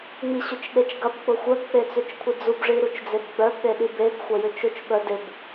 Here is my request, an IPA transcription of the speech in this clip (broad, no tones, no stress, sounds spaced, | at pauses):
ŋ͡m i ɕ ʏ t͡ʃ ɗ e t͡ʃ ɡ ɐ b k͡p ʊ xʷ œ b k͡p e t͡s ʏ t͡ʃ kʷʰ ɪ d͡z u b ʐ i ɾ u t͡ʃ d͡z e b ɡ͡b œ b ɗ e ɗ i b e b xʷ ɐ j ʏ t͡ʃ ʊ t͡ʃ ɓ œ d ɪ b